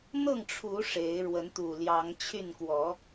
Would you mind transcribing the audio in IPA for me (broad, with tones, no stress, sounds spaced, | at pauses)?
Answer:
n̪ ɤ˥˨ ŋ ʈ͡ʂʰ u˨˦ ʂ e˨˦ ɪ̯ ɻ w ə˨˦ n t̪ u˨˩ l j ɑ˨˦ ŋ t͡ɕʰ y˥˨ n k w ɔ˨˦